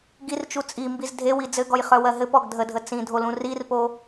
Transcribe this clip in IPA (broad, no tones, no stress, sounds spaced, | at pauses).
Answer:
ɡ i r t͡ʃ u t͡sʼ i m b i z dʱ e w i d͡z ɘ ɡ ɔ j χ œ w ɜ ɦ ɘ p ɔ ɡ dʱ ə dʱ ə t͡s ĩ dʱ o l ũ r i r p o